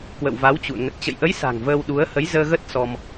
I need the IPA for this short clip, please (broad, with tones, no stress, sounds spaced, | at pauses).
k w ə̰˧˨ w v a˨˦ w t͡ɕ ṵ˧˨ ə̯ ŋ ə˨˩ t̚ t͡ɕ ə̰˧˨ j ʔ ə˨˦ j s a̤˨˩ ŋ v əː˧ w ɗ u˨˦ ə̯ h ə˨˦ j z əː˧ ɣ ə˦˥ t̚ s ɔ˧ m